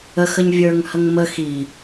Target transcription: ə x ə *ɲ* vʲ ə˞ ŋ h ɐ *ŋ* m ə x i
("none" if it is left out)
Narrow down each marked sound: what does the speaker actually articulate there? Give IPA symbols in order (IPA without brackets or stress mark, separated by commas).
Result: ɲ, ŋ